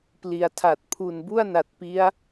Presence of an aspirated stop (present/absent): present